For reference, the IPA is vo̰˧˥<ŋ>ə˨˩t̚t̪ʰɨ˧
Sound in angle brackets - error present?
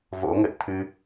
no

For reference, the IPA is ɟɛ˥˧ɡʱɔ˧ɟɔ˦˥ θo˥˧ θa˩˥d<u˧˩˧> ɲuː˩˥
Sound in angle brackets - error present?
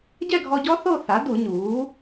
no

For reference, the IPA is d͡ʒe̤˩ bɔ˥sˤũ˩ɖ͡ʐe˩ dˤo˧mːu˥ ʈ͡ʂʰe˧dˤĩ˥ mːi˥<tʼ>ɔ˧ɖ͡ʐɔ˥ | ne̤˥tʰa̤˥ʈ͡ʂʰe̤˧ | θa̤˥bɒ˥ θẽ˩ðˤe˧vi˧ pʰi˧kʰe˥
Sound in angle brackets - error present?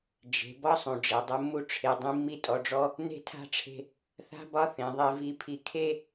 no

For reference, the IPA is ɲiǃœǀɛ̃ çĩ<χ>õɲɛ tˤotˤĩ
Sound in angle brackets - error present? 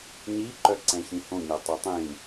yes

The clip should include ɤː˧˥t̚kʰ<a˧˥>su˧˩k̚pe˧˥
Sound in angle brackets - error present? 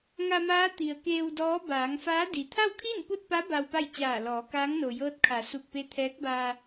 yes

